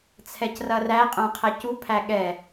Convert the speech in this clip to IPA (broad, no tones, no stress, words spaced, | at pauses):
t͡sʰɛcrɐræ qʼœ̃qʰɛcu pʰæɠɛ